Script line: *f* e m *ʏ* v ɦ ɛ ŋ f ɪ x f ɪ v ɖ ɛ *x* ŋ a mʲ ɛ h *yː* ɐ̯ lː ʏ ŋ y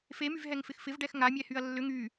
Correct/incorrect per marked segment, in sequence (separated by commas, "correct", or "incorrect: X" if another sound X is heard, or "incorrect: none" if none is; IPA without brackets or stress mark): correct, incorrect: y, correct, incorrect: y